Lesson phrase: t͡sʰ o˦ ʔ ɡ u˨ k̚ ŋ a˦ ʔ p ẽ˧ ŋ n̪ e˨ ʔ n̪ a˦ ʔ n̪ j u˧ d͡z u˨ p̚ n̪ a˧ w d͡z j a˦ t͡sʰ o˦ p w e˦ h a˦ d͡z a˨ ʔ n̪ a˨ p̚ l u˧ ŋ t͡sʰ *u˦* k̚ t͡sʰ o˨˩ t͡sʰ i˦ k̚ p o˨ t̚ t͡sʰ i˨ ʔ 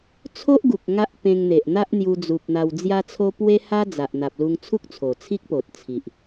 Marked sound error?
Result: no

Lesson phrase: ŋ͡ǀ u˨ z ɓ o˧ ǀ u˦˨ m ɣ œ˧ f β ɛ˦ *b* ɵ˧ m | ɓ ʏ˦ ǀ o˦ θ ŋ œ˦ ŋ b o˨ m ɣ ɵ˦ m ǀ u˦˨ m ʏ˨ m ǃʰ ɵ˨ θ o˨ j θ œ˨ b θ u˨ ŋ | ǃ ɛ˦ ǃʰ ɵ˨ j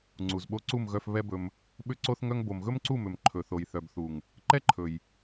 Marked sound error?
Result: no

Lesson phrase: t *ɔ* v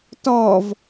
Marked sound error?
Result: no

